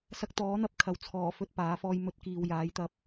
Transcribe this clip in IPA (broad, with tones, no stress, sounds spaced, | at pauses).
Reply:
s ɐ˧ k̚ t̪ ɔː˨˥ n̪ ɐ˧ p̚ kʰ ɐ˨ w t͡sʰ ɔː˨˩ f ɵ˨˥ t̚ p aː˨˥ f ɔː˧ j m ɵ˨˥ t̚ k iː˨ w j aː˨˥ j t̪ ɐ˧ p̚